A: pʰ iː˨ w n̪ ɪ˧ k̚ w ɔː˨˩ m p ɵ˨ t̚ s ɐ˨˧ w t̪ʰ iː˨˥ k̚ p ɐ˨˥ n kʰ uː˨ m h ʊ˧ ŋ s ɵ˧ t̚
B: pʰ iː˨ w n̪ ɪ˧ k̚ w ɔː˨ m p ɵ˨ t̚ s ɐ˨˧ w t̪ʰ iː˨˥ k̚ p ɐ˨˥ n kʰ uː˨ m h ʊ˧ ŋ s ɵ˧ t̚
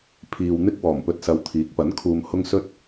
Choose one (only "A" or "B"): A